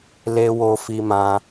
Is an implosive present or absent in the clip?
absent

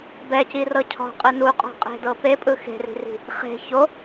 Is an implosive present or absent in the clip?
absent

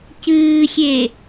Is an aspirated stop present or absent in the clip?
absent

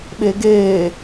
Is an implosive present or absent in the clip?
present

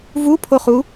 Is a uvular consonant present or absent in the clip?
present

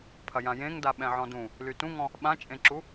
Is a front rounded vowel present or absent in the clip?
present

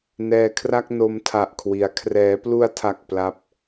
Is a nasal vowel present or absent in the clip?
absent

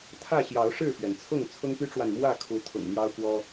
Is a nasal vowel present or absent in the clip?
absent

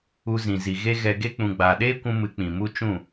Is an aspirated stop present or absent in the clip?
absent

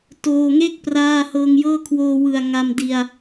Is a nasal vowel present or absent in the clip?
absent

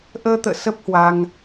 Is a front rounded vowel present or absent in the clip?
absent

